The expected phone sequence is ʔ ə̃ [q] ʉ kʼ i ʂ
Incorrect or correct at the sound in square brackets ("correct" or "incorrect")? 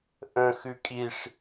incorrect